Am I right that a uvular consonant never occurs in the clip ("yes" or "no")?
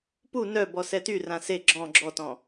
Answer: yes